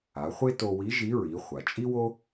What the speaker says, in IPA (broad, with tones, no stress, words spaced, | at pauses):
a˩˧χʷe˥to˧wi˧˥ ʒi˧˥ɹi˩˧ χʷa˩t͡ʃʼi˥wo˥